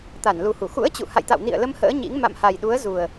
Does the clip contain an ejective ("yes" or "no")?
no